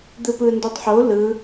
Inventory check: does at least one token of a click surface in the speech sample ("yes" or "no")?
no